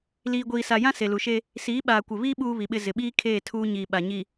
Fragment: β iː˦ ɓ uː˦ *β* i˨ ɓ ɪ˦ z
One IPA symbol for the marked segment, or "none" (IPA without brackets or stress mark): β